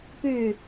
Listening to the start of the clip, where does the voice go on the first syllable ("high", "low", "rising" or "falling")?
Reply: falling